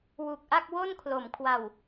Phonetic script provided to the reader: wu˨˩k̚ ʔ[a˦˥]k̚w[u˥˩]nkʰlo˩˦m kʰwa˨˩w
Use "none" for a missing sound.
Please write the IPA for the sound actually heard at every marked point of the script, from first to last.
a˥˩, o˥˩

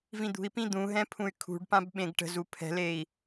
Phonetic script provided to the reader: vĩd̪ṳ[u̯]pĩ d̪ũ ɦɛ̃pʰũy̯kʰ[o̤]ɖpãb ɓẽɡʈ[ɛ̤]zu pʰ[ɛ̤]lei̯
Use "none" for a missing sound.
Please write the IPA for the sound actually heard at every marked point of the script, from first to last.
i̯, ṳ, ə̤, ɛ̤

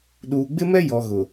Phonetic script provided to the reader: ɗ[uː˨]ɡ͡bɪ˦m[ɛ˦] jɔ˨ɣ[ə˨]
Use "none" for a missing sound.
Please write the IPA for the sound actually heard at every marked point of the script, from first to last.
uː˨, ɛ˦, ʊ˨

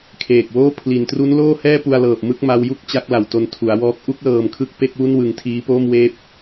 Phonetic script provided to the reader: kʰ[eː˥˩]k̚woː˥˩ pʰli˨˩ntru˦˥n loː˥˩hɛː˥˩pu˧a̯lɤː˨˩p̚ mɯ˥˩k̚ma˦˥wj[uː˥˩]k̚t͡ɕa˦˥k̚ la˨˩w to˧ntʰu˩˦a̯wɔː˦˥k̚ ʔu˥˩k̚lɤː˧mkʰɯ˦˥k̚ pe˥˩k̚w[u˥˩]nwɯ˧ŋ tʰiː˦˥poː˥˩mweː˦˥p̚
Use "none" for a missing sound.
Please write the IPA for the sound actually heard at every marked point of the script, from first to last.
eː˨˩, u˥˩, u˥˩

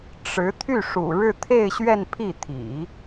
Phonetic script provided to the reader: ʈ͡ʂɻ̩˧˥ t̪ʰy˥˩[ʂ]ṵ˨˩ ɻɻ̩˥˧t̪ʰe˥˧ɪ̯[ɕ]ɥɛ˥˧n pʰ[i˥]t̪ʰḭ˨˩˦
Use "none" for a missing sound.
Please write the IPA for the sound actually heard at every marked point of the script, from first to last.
ʂ, ɕ, i˥˩

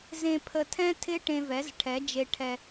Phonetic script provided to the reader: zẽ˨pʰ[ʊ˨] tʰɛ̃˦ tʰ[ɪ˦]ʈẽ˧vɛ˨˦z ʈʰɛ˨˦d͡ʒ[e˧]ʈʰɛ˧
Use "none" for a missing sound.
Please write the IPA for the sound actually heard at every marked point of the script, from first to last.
ə˨, ɪ˦, e˧

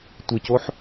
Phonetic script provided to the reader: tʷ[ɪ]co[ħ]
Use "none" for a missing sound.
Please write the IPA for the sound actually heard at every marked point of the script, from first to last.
ɪ, ħ

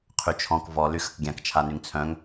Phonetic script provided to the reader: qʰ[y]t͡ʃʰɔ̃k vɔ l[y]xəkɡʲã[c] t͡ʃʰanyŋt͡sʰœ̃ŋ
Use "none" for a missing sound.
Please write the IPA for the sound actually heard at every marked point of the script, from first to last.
y, y, k

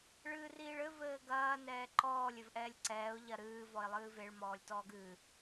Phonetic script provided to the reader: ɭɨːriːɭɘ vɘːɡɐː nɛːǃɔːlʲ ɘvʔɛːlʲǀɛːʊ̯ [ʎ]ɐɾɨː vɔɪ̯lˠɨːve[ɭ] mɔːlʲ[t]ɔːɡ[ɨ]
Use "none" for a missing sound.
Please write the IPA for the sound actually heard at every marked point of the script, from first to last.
ʎ, ɭ, t, ɨ

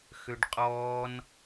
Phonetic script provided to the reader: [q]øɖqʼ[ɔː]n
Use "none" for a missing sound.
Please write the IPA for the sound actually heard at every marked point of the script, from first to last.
x, ɔː

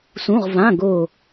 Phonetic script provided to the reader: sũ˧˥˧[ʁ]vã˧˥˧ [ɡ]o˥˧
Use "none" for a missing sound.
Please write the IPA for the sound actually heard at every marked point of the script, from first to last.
ʁ, ɡ

